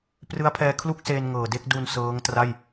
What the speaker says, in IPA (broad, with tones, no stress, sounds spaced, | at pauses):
p r ɯ˦˥ a̯ pʰ ɛː˧ kʰ l u˥˩ k̚ s eː˧ n ŋ ɤː˨˩ d e˥˩ k̚ d u˧ n s ɤː˦˥ ŋ t r a˥˩ j